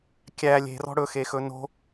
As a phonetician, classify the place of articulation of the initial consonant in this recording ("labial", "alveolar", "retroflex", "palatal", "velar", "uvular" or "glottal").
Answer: velar